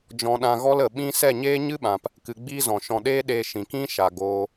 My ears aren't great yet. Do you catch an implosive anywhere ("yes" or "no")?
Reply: yes